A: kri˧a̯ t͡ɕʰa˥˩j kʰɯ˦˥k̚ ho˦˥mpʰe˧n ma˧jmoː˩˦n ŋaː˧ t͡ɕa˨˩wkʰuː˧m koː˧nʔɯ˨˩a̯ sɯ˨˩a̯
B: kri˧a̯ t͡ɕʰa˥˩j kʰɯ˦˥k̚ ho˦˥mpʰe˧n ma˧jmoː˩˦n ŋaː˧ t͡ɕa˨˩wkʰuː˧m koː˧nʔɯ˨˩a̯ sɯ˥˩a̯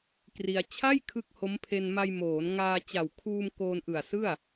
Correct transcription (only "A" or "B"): B